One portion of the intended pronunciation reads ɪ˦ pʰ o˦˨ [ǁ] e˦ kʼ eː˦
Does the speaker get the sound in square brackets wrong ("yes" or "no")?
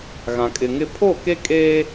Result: yes